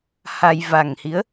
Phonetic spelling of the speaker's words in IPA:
h a˧ j v a˨˩ ŋ h i˨˦ ə̯

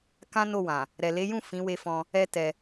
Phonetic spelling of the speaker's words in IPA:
k ã˦ n o˦˨ w ã˨ | ɾ ɛ˨ l e˨˦ j ũ˦˨ f ĩ˨˦ w e˧ f ɔ̃˧ | ɛ˦ t ɛ˧

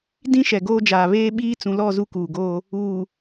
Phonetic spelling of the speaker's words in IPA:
d ĩ˦ ʃ ɛ˨ ɡ oː˦ d͡ʒ aː˨ β eː˦ ɓ iː˦ t͡s ũ˨ l ɔ˦˨ z u˦ k uː˨ ɡ oː˦ | uː˨

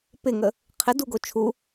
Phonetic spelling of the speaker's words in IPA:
p ɪ ŋ ə | qʰ ɪ d u ɡ o t͡ʃʰ u

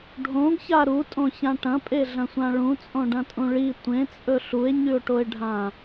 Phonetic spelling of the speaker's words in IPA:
ɖʱ õ ɡ ç a ɾ u tʼ õ ç ã ʈ ɐ̃ pʼ e ɮ ɐ̃ sʷ ã ɭ ũ t͡sʼ õ ɖ ɐ̃ tʼ ũ ɭ i tʷ ẽ t͡sʼ ɵ ɬ u e̯ ɲ ʉ o̯ ʈ o e̯ ɖʱ ã

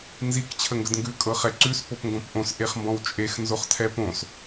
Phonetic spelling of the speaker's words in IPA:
n z i k t͡ɕʰ ə ŋ ɡ ə d ŋ ɡ ʉ kʼ ɤ χ ɛ ǀ ʉ s p o p ŋ ɡ õ p ʔ õ s ʔ e χ m b ɔ̃ w t͡ʃʼ e x n z o χ tʰ ɛ p õ s

